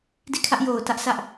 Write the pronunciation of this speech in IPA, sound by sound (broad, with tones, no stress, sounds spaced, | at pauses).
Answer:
d i˦˨ kʰ ä˦ ʔ j o˨ ʊ̯ t ä˦ ʔ s ä˦ ʔ